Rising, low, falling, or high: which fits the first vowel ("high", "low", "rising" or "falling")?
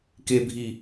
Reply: low